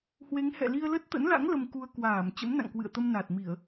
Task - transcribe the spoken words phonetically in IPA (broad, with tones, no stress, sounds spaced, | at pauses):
h w e˨˦ ŋ h ɛ̰˧˨ l i˧ ə̯ l ə˦˥ t̚ t̪ ə̰˧˥ n l a̰˧˥ ŋ l ə˧ m k u˧ ə̯ k w aː˧˩ m t͡ɕ ə̰˧˥ m n a̰˧˨ ŋ k w ɨ̰˧˨ ə̯ t̪ ə˧ m n a˨˩ t̚ m i˧˩˨ ə̯